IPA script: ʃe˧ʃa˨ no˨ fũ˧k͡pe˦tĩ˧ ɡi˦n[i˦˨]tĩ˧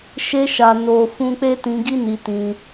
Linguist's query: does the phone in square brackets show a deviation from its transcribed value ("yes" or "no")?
yes